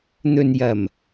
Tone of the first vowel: low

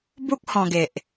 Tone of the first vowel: high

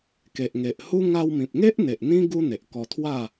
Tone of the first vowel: low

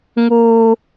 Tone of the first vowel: high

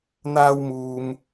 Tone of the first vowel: high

